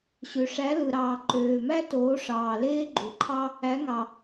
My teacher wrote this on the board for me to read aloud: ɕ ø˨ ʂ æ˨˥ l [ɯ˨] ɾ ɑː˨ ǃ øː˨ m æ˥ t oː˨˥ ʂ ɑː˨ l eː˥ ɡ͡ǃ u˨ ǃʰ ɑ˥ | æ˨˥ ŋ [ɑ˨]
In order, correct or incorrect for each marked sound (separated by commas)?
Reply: correct, correct